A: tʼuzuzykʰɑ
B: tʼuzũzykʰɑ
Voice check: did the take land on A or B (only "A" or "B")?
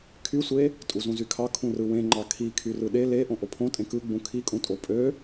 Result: B